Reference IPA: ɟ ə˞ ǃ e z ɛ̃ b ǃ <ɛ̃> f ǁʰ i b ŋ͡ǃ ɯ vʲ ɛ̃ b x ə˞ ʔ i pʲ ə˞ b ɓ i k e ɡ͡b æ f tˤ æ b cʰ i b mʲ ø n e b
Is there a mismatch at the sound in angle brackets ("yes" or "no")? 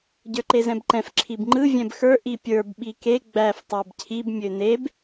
no